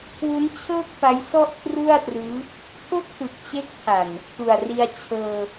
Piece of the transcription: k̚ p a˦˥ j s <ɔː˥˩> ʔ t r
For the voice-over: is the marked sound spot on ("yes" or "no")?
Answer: no